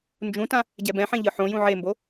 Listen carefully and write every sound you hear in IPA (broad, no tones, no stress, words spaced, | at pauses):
nd͡ʒũtã | ɟɛbɛ̃ħẽ ʎɯħõjũ ʕembo